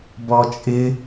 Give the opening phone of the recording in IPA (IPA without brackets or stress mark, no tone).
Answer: b